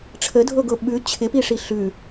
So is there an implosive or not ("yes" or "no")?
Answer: yes